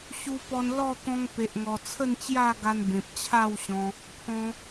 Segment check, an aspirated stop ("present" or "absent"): present